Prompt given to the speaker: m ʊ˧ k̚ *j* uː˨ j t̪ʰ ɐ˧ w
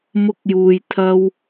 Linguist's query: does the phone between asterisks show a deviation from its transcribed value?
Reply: no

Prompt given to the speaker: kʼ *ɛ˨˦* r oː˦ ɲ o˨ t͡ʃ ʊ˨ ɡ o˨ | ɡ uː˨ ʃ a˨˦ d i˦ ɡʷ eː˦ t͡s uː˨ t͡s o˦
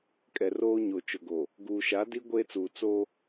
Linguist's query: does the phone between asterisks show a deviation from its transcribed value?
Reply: yes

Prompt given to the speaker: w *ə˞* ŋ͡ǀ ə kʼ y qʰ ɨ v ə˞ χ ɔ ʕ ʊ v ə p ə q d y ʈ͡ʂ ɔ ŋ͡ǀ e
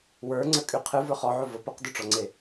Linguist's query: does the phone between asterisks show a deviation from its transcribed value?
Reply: no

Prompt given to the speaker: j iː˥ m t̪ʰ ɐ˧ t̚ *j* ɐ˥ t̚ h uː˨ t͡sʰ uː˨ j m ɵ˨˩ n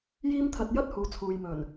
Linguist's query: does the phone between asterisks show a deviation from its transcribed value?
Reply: no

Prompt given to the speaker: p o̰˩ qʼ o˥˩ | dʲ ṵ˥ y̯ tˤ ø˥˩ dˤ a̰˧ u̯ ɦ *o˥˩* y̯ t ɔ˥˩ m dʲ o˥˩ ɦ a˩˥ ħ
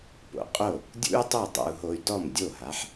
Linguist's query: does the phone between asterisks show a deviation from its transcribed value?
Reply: yes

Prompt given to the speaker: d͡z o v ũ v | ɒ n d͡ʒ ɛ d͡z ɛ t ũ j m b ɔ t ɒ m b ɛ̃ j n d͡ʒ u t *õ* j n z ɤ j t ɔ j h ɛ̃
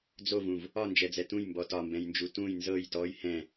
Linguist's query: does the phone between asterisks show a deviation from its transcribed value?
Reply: yes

